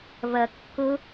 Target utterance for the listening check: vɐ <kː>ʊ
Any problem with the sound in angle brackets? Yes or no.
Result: no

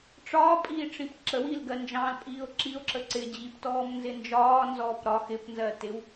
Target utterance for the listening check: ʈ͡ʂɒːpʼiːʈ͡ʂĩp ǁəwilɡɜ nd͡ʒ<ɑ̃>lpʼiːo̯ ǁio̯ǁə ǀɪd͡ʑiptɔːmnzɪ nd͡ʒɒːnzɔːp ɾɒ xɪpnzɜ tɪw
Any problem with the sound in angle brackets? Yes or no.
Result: no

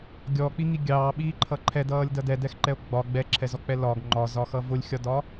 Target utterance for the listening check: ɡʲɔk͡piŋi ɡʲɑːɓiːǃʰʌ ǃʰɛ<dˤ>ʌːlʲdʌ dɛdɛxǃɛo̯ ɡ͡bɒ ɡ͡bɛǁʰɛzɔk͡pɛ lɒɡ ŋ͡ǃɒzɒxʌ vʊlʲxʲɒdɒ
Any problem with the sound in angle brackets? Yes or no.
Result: yes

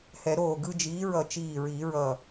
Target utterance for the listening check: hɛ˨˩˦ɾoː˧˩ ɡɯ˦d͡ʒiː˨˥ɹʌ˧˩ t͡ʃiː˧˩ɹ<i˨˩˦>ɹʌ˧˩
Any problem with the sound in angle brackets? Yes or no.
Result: no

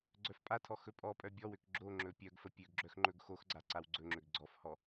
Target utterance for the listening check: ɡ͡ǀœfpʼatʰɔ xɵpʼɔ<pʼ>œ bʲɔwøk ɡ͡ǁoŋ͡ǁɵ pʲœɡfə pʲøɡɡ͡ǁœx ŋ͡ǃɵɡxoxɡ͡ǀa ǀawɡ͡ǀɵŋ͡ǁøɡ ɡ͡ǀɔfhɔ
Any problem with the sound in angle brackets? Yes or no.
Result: no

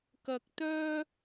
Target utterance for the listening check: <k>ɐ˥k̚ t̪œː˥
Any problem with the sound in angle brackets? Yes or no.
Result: no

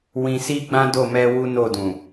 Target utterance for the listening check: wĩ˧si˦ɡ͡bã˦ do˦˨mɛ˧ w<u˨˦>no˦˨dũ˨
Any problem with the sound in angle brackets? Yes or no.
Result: yes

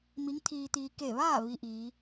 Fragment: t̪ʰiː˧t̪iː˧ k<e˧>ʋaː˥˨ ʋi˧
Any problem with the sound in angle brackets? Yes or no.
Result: yes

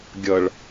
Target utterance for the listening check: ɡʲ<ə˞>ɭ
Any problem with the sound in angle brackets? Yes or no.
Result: yes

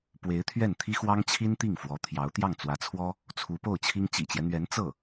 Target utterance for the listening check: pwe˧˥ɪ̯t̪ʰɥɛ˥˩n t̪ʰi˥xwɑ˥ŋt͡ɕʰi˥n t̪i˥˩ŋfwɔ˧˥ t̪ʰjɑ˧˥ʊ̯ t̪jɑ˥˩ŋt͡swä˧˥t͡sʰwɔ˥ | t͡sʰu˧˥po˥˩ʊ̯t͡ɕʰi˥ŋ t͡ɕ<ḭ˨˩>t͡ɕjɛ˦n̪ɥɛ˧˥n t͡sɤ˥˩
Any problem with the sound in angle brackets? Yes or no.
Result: no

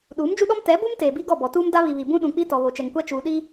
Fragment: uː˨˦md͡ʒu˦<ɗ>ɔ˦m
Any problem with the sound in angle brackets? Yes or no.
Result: no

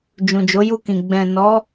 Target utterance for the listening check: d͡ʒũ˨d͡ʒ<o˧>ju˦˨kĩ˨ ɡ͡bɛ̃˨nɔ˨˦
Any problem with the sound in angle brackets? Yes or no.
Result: yes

